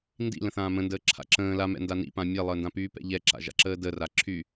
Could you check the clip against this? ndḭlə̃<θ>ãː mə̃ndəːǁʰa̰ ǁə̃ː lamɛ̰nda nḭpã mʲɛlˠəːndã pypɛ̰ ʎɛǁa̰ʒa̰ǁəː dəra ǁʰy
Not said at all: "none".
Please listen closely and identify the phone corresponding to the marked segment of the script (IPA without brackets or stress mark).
θ